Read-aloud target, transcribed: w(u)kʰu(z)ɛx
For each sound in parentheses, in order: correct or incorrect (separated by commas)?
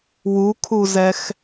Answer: correct, correct